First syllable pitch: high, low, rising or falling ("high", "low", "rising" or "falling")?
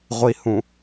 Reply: low